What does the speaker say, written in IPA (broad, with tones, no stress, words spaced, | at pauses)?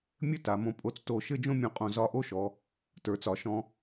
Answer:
mʲɘ˥ ta˩˧mõ˧ pʼo˧t͡sto˧˩ ʃɘ˥˧d͡ʒõ˥˧mʲõ˧˩qʼõ˧˩ zɒ˧ʔo˥ʃɔ˩˧ | tə˞˩˧t͡sɒ˩˧ ʃɔ̃˧